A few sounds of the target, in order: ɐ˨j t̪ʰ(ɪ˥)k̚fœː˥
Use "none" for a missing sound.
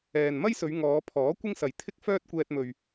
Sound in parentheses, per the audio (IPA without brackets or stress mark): ɪ˥